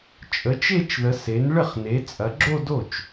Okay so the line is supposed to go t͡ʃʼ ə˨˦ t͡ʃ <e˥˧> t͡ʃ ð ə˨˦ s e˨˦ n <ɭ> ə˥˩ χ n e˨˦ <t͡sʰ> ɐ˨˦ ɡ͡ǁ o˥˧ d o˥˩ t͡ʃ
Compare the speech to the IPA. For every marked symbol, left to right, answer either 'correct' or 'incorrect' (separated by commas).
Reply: correct, correct, incorrect